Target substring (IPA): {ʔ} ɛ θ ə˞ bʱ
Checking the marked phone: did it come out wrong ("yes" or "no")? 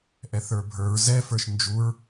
no